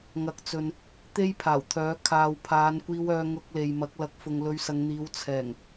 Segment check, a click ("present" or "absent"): absent